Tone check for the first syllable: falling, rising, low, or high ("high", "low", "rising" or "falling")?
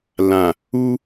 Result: low